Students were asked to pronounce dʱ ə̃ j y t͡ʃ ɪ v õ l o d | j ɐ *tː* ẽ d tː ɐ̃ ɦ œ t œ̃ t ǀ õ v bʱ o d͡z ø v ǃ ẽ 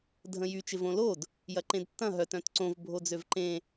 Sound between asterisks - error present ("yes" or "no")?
yes